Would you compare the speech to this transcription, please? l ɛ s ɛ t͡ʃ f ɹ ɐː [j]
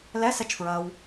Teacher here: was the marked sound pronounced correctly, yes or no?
no